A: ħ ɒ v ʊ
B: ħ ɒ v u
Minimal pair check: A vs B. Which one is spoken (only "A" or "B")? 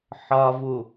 B